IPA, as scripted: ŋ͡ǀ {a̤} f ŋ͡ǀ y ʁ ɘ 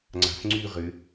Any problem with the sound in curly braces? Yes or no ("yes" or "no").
no